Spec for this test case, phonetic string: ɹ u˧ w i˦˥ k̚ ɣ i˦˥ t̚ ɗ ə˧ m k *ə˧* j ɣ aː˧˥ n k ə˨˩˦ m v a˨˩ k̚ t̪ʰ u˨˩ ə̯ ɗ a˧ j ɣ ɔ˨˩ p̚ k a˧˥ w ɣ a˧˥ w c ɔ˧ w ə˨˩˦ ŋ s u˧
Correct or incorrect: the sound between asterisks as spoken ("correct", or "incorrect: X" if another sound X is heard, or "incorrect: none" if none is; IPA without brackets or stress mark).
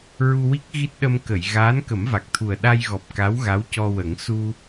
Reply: incorrect: ə˨˩˨